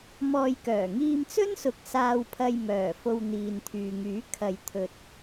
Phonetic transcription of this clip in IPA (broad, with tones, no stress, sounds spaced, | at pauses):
m ɔː˧ j k œː˨˩ ŋ iː˧ m t͡s ɵ˥ n s ʊ˨˥ k̚ s aː˧ w pʰ ɐ˧ j m œː˨˩ f o˧ w n̪ iː˨ n t̪ʰ yː˨ ŋ yː˨˥ kʰ ɐ˨ j t̪ʰ ɵ˨ t̚